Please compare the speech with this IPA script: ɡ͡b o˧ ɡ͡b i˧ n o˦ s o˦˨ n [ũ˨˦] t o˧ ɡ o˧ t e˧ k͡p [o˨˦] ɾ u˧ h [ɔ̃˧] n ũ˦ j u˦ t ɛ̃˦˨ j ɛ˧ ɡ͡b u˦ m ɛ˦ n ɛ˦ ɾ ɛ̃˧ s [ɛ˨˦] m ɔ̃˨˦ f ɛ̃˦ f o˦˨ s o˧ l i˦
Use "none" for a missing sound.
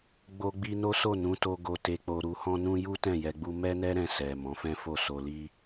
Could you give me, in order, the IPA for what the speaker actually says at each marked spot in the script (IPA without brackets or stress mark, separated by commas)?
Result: ũ˨˦, o˧, ɔ̃˦, ɛ˨